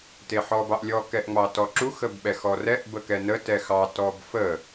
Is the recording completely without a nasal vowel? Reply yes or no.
yes